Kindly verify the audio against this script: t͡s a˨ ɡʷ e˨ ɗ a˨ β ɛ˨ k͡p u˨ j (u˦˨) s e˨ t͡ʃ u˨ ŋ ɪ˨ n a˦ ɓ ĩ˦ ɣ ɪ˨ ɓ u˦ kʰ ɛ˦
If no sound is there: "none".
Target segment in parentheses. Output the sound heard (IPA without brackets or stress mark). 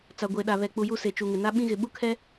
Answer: u˦˨